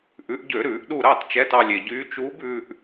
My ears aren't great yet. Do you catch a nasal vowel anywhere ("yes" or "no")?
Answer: no